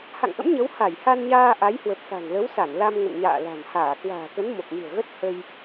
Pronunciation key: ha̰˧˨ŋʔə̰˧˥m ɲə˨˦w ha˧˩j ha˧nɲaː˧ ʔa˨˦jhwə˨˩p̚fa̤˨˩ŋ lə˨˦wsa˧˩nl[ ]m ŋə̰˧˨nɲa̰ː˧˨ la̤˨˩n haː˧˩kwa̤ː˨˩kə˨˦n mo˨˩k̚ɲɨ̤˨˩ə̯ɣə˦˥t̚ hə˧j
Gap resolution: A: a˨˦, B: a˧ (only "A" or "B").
B